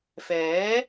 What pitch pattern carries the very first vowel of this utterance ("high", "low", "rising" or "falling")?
rising